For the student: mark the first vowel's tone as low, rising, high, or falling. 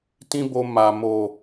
high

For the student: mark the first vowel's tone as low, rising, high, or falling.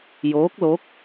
rising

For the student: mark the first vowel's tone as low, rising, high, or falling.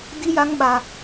high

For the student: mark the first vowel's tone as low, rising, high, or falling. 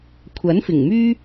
rising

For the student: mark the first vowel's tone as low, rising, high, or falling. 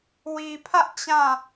low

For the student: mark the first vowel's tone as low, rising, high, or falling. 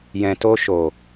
low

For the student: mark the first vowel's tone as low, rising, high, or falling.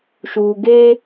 low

